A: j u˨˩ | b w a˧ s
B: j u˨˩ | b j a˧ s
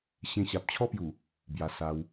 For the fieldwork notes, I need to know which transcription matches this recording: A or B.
B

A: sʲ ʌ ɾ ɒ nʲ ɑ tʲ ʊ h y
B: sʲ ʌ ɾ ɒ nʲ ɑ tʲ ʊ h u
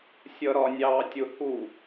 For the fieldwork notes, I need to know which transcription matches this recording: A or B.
B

